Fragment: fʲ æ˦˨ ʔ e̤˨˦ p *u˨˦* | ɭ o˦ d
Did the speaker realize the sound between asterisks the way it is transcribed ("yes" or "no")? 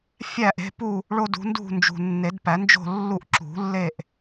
no